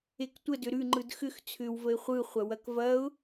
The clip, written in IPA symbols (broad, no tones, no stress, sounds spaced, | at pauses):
e k tʷ ə d ʏ ɾ ʉ ŋ͡ǃ ɯ d x ʏ x t͡sʰ ʏ w v ə ɪ̯ χʷ ɯ χʷ ɐ w ɐ k v ɐ ʊ̯